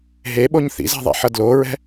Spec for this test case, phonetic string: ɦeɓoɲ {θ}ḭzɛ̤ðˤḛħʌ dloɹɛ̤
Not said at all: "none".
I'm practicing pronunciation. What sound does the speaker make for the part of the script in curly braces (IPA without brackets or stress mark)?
θ